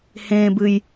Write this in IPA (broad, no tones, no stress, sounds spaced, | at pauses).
h ẽː b ɨ j